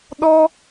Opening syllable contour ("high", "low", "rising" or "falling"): high